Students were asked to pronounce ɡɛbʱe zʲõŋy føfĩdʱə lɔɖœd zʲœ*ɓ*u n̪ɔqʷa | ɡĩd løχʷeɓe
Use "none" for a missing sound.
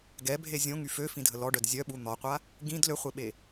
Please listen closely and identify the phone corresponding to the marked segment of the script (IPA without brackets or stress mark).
ɓ